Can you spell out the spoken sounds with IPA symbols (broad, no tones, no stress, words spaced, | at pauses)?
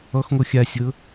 ɔxŋo xʲasʲɤ